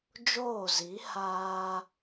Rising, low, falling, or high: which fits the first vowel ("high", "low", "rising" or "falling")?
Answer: falling